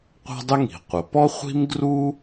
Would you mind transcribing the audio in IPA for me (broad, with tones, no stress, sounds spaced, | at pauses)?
qʷ a̤˥ dˤ ɪ˥ ŋ i̤˩ qʷ ə˩ p ɔ˥ χʷ i̤˥ m ɡ r u˥